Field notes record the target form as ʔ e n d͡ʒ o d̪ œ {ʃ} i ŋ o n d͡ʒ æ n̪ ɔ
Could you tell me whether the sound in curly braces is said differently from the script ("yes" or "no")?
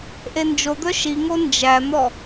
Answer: no